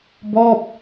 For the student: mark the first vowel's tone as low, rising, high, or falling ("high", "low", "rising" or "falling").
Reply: falling